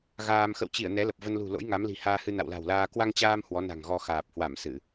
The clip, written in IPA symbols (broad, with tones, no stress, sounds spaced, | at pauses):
ɣ aː˧ m x ə̰˧˨ w t͡ɕ i˧˩ ə̯ n ɛ˨˦ l ə˨˩ p̚ v ə˧ n l ṳ˨˩ l o̰˧˥ j ŋ a˨˦ m l i̤˨˩ h aː˧ h ɨ˧ n a̰˧˨ w l a̤˨˩ w l aː˧ k w a˧ ŋ t͡ɕ aː˧ m h w ɔ˨˦ n a̤˨˩ ŋ ɣ ɔ˧ x aː˨˩ p̚ h w a˧˩ m s ɨ˧˩˨